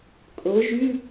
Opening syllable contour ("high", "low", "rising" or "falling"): rising